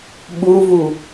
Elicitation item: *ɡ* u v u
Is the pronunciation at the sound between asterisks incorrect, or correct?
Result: incorrect: ɓ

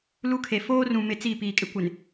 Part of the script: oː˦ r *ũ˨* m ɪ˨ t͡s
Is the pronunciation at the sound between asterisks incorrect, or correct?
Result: correct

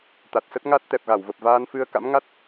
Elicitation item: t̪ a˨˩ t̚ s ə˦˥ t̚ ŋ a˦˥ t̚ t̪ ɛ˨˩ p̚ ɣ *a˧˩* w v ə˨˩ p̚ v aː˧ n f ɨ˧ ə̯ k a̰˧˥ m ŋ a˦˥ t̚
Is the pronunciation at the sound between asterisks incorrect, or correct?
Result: correct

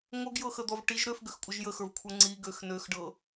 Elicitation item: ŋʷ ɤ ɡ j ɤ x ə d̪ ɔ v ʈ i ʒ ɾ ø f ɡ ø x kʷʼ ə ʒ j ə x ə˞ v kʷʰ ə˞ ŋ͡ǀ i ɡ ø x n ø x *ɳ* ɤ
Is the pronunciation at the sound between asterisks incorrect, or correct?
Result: incorrect: ɖ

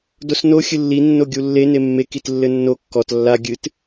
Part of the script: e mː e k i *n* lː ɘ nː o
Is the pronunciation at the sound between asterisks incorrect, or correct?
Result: incorrect: t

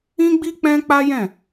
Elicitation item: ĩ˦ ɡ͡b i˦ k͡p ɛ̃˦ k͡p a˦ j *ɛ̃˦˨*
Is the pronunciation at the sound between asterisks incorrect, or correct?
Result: correct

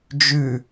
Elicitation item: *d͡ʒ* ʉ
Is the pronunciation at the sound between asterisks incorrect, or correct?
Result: correct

